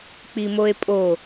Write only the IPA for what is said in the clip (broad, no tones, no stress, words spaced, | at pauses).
k͡pimoe̯pʼo